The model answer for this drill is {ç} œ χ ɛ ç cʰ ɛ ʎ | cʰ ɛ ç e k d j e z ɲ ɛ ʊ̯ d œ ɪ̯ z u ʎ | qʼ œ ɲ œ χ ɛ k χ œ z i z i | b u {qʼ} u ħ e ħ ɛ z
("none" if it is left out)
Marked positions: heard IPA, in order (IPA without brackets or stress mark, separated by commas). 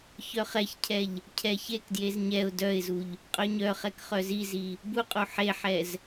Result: ç, qʼ